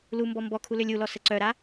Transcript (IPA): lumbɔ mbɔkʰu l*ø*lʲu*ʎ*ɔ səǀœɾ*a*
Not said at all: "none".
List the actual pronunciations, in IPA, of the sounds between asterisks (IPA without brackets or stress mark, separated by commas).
ø, l, a